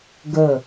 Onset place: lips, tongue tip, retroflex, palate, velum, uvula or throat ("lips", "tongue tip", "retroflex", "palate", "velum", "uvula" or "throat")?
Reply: velum